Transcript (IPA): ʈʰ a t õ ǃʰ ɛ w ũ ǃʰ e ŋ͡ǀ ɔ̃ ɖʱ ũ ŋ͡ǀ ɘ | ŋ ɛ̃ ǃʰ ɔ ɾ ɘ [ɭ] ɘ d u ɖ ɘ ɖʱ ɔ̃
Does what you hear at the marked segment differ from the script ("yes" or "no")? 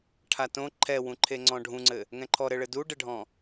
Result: no